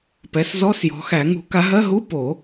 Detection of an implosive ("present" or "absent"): absent